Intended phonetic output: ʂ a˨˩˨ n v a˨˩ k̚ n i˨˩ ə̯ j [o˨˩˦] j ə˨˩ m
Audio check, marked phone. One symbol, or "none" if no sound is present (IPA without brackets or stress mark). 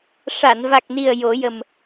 o˨˩˦